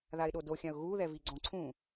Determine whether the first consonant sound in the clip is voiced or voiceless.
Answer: voiced